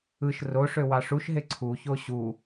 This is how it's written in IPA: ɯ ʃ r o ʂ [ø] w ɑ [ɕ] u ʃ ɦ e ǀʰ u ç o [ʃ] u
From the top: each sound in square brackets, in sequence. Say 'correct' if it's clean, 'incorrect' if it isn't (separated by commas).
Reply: correct, incorrect, incorrect